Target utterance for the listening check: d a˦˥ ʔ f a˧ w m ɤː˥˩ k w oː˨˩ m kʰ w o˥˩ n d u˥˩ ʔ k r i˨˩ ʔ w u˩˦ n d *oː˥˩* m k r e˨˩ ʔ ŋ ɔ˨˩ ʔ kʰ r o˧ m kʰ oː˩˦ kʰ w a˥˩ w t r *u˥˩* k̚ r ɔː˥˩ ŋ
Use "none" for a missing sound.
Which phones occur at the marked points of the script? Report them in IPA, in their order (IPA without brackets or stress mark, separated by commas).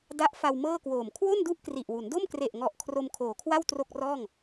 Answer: o˥˩, o˥˩